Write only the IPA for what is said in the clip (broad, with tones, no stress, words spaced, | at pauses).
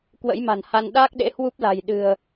kwə̰˧˥jma̤˨˩nha˧n ɗaː˦˥k̚ɗḛ˧˥ hwu˦˥p̚la̤˨˩j ɗɨ̤˨˩ə̯